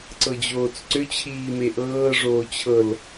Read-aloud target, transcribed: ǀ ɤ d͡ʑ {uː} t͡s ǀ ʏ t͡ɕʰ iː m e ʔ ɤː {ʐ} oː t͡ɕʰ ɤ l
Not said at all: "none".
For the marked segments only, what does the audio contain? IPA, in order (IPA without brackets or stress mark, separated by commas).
oː, ʐ